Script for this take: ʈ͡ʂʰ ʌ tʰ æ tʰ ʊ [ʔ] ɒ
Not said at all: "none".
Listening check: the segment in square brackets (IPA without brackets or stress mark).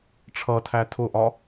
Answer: ʔ